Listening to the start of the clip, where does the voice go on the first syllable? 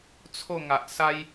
falling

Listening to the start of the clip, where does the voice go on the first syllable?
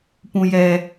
low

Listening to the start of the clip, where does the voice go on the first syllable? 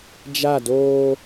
falling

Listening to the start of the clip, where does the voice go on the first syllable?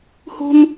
high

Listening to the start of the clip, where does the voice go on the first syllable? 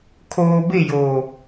low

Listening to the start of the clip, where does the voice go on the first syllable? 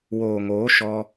low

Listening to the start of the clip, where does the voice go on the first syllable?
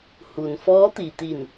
low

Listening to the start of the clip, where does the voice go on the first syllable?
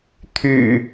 low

